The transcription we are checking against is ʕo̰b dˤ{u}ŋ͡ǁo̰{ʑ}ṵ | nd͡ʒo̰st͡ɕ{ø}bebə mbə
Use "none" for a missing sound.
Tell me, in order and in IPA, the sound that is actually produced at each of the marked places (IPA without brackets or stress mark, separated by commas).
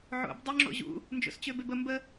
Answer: ø, ʑ, ø